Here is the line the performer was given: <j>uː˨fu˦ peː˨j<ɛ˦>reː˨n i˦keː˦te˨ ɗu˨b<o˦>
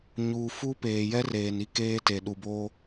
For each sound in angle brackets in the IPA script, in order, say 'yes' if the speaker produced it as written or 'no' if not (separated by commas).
no, yes, yes